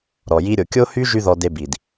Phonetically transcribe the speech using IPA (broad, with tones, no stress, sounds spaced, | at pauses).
ɾ ɔ˨ j i˦ ɾʲ o˨ kʲ o˦ h y˦ ʒ y˧ ð ɔ˦ d e˦ b i˨ d